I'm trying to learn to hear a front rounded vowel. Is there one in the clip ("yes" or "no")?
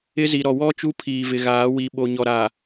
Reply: no